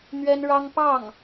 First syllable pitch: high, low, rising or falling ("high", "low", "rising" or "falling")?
high